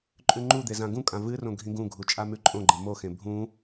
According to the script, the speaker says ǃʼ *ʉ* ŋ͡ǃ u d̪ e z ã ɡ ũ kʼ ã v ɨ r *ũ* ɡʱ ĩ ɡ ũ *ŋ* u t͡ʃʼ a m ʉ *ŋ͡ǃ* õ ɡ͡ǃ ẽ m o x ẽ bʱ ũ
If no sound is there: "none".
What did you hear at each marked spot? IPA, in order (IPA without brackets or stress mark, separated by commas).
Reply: ʉ, õ, ɡʱ, ǃʼ